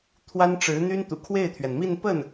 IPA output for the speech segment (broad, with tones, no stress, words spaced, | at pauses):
t̪ʰwa˥nʈ͡ʂɻ̩˧˥n̪y˥n t̪ṵ˨˩kʰwe˥˩ɪ̯t̪ʰɥɛ˩nmi˥˧n pə˥˩n